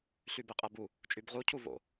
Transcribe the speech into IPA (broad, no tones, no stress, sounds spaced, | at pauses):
ɬ y b e qʼ æ b u | t͡ʃʼ y b ʁ u cʰ u v o̰